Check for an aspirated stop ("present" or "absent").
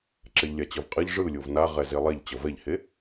absent